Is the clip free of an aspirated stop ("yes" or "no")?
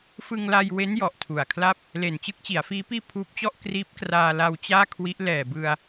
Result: no